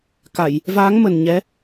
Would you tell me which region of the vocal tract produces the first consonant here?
velum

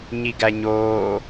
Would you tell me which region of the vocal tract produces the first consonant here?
palate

